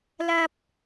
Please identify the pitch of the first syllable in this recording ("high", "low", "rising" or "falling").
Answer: high